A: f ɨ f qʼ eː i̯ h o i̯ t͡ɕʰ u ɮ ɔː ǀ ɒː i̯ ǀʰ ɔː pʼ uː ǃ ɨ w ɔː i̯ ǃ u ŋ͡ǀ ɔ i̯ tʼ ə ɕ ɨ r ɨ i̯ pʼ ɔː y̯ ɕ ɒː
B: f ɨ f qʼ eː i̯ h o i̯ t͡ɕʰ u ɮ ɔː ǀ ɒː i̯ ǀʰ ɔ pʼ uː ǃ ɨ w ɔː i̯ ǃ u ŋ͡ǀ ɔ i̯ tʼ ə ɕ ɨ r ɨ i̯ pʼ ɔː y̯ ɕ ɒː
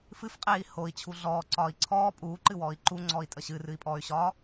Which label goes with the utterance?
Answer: A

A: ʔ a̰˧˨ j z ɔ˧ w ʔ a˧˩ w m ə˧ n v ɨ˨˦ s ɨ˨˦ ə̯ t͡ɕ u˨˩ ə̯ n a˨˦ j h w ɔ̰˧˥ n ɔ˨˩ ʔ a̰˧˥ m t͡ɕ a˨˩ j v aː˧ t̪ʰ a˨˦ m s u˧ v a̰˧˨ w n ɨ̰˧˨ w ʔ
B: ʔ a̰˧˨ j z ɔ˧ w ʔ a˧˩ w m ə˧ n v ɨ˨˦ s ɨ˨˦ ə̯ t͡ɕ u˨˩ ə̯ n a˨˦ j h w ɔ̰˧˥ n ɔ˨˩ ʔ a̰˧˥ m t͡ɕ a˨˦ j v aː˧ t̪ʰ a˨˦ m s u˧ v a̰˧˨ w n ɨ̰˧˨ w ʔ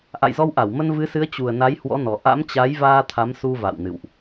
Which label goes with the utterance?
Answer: B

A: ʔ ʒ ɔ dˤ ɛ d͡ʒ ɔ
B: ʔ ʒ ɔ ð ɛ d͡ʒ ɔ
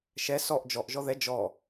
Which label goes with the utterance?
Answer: B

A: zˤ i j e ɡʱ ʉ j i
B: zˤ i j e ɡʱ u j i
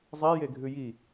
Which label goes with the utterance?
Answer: A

